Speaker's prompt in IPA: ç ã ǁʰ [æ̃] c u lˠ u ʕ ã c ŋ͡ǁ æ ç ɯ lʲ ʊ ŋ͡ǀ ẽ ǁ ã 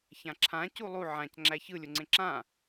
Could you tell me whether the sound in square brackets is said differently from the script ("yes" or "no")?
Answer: yes